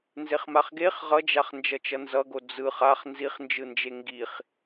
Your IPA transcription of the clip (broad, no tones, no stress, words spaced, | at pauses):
nzeχmaχɡeχ ʁʌd͡ʒaχ nd͡ʒʌt͡ʃʌnzʌɡo d͡zɯχ aχ nziχnd͡ʒɯnd͡ʒe ŋɡiχ